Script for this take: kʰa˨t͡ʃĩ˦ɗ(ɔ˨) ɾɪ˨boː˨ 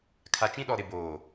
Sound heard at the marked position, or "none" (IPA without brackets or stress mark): ɔ˨